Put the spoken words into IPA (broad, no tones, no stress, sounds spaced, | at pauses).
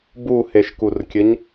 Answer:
b u h e ʃ k u r kʲ ɘ ɲ